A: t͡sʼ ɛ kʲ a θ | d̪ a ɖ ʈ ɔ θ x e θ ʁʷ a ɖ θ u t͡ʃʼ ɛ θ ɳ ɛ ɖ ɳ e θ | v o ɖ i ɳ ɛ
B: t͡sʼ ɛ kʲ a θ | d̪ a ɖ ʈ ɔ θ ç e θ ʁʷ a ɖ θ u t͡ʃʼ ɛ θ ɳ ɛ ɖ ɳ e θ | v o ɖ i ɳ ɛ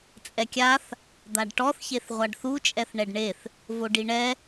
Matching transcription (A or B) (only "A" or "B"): B